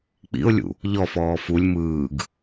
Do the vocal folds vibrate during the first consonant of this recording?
no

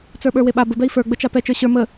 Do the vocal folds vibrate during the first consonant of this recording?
no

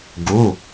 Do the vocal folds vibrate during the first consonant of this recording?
yes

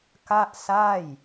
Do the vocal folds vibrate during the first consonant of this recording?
no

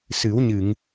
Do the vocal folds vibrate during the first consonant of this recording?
no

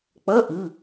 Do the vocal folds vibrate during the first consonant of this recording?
no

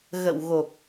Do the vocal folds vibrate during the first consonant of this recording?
yes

